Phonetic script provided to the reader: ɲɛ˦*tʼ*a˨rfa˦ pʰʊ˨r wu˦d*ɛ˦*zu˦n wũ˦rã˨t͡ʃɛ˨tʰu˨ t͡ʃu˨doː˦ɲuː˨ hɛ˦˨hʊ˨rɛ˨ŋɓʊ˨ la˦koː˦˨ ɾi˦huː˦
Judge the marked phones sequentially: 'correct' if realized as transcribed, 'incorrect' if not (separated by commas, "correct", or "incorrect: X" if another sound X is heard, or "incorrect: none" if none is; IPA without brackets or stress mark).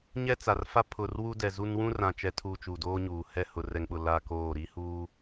incorrect: t͡s, incorrect: ɛ˨